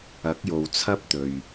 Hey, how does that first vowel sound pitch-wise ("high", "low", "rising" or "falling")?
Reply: rising